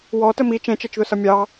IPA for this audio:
wɔ təmi t͡ʃɛ̃t͡ʃɜt͡ʃðʊsʌ mʲɑ

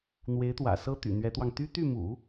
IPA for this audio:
n̪we˧˥ɪ̯t̪wä̰˨˩sɤ˥t̪y̰˨˩ n̪ɥɛ˧˥t̪wɑ˧ŋ t̪y˥t̪y˥˩mṵ˨˩˦

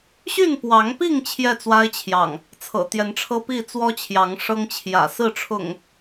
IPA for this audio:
ɕy˥˨npwɑ˨˦ŋpi˥˨ŋ t͡ɕʰjɛ˥˨t͡swa˦ɪ̯t͡ɕʰjɑ̰˨˩ŋ | t͡sʰɤ̰˨˩t̪jɛ˨˦nʈ͡ʂʰɤ˦pi˥˨ t͡swɔ˦t͡ɕʰjɑ˨˦ŋ ʂɤ˦ŋt͡ɕʰjä̰˨˩ sɹ̩˥˨ʈ͡ʂʰʊ̰˨˩ŋ

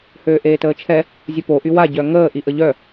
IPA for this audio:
høːʔeːtəːt͡ʃʰɛ | zʲopo ʔywa ɟœŋəː ʔiʔəʎœ

